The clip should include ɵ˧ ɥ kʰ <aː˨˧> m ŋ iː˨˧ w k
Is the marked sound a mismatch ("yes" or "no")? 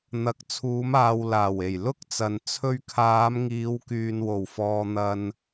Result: no